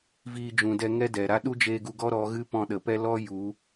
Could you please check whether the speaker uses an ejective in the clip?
no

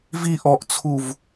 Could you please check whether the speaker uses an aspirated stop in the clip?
yes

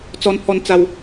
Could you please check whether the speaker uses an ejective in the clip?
no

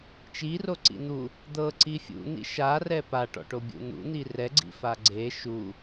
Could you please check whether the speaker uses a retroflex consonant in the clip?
yes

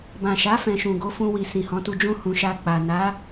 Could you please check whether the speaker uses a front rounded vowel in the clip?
no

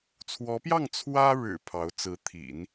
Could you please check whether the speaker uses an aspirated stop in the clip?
yes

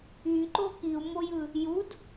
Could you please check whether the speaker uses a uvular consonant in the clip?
no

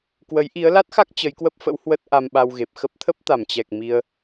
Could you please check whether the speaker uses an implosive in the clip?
yes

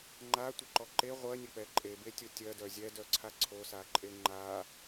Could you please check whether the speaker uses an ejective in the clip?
yes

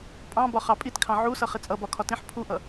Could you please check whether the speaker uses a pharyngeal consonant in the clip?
yes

